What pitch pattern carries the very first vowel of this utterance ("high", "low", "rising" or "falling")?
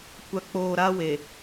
low